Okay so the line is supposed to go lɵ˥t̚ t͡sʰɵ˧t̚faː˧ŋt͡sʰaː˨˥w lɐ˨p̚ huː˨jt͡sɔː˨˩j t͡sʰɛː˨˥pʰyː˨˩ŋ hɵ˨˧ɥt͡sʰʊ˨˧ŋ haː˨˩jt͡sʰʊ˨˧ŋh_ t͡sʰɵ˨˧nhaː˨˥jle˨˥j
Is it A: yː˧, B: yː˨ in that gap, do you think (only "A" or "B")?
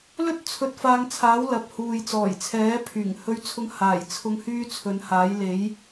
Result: A